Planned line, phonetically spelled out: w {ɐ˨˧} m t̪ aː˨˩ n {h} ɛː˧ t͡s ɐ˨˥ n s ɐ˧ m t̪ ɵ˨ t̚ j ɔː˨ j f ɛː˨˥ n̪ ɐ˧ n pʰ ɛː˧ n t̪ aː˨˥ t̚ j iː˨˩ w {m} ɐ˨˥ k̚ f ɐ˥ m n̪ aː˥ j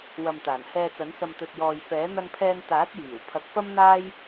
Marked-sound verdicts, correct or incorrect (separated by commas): incorrect, correct, incorrect